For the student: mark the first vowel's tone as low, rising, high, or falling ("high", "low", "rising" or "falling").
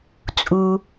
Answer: low